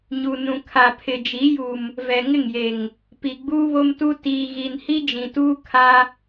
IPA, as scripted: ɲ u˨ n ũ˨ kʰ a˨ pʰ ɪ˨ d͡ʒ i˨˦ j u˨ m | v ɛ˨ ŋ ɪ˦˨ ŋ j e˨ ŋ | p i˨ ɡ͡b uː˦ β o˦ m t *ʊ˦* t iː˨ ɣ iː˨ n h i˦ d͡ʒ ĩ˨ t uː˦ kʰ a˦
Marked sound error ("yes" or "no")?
yes